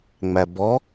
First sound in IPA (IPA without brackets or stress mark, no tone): ŋ͡m